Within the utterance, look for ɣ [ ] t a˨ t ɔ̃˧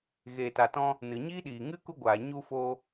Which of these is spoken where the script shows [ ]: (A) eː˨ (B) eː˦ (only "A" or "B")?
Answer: A